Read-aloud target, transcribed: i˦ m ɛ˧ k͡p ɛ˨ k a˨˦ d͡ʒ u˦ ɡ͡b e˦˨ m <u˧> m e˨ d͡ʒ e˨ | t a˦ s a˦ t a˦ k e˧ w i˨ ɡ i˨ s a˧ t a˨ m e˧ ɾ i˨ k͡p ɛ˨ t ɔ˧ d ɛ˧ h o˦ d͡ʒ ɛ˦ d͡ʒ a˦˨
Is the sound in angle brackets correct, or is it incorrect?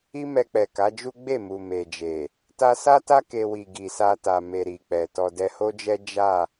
incorrect